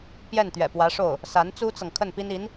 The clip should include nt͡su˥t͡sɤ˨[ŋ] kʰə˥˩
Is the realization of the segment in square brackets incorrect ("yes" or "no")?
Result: no